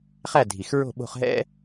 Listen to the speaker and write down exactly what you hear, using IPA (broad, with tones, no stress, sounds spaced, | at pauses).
χ æ˥˩ dʱ i˩ x ɹ o̤˥˩ ɓ o̤˧ χ ɦ ɛ̰˥